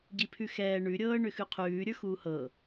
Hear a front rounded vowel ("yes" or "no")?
yes